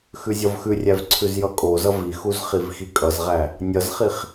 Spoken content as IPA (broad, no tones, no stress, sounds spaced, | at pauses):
x ʉ zʲ ʌ v x ʉ rʲ æ v ǀʰ ʉ z j ʌ kʼ o z ʌ v i x u z χ i v x i kʼ ʌ z ʁ æ | nʲ ʌ z χ i χ